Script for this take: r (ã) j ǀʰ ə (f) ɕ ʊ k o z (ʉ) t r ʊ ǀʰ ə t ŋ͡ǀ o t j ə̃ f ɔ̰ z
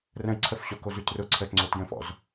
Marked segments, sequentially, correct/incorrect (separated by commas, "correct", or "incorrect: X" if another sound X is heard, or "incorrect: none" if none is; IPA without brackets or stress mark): incorrect: ə̃, correct, correct